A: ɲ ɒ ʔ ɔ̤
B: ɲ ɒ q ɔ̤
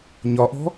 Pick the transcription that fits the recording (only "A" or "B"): A